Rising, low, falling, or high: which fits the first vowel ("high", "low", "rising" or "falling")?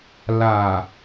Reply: low